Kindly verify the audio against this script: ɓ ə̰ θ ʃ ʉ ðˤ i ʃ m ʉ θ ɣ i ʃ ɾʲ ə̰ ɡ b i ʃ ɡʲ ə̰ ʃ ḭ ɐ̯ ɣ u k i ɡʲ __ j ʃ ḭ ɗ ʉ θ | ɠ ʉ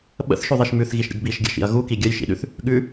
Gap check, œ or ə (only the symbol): ə